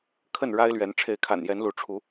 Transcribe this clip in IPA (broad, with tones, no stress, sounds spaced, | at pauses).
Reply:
kʰ ə˥˨ n ɻ a˦ ɪ̯ l ɥ ɛ˨˦ n ʈ͡ʂʰ e˨˦ ɪ̯ kʰ a̰˨˩ n j ɛ˨˦ n l u˨˦ ʈ͡ʂʰ u˨˦